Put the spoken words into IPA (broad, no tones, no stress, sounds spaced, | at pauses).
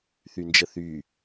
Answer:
θ y n d͡ʒ ə θ y